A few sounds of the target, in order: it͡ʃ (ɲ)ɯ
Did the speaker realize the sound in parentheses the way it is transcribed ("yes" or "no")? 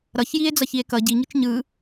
yes